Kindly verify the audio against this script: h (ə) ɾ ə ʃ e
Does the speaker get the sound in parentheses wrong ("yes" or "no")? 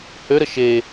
yes